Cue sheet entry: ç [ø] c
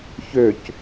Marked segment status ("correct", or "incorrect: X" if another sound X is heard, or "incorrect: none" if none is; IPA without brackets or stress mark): correct